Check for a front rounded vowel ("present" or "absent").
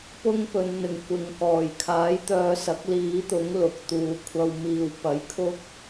present